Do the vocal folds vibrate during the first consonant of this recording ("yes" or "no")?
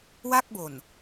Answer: yes